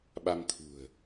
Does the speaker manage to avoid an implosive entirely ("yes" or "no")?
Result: no